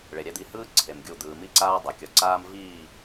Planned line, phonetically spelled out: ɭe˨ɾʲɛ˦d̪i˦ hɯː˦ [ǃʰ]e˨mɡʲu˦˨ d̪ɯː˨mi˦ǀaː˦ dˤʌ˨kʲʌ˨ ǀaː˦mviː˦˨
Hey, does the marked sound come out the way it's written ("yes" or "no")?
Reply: no